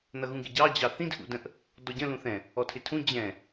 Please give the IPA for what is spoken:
n ʌ ɣ ũ ɡ ɪ ɟ ɑ d͡ʑ ɑ θ ĩ d ʔ ṵ d ə̃ ʔ | d ɔ ɟ ə̃ l ũ θ ɛ̃ | ɔ tʰ ɪ tʰ ũ d͡ʑ ɛ̃

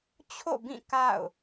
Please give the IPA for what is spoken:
t͡ɕʰ o̰˦˨ b ĩ˦˨ k a̰˦˨ ʊ̯

